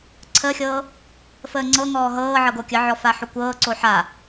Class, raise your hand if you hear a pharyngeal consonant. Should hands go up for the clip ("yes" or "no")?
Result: yes